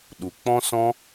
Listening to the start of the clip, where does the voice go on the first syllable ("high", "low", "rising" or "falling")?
low